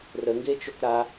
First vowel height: mid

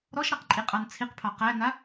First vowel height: mid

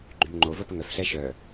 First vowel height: high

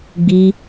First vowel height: high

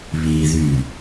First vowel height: high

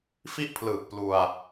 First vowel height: high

